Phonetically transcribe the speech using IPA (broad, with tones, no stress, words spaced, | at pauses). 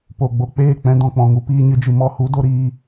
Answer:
po˨ ɡ͡bo˨k͡peː˦˨k͡pɛ̃˧ dɔ̃˨k͡pɔ̃˨ŋu˧ piː˧ɲɨ˧d͡ʒɨ˨mɔ˦˨ hu˦do˦ ɾiː˦